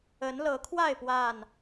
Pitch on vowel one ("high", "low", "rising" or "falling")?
rising